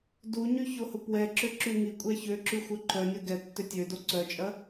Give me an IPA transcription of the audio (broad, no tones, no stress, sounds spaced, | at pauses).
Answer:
d u ɲ y ç o h ʊ p w ɛ ǁ ʏ ǁ y ŋ i kʷʼ ɛ ç ø ǁ y xʷ œ ǃ œ nʲ o ɡ ɛ tː ʏ tʲ ø d o ǀ œ t͡ʃʼ ɐ